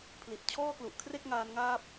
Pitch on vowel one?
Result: low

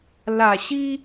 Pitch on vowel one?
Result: low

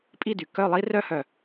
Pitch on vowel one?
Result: falling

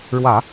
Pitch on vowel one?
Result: low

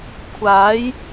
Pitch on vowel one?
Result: rising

